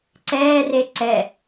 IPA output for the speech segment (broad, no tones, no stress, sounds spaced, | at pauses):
ǀ ɛː r e ǀ ɛ